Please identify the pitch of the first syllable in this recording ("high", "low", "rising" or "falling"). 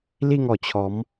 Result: falling